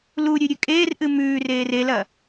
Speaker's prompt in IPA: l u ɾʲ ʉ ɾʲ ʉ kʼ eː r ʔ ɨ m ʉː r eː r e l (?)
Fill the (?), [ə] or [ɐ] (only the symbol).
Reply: ɐ